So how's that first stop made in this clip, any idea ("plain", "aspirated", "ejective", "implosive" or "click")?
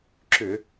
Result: click